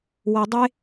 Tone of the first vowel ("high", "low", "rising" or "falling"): low